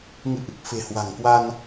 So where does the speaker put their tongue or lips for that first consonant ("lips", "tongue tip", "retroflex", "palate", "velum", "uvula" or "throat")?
velum